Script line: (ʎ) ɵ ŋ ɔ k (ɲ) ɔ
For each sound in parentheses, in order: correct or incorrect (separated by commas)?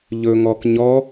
correct, correct